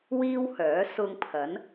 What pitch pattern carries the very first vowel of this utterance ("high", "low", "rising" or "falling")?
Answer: high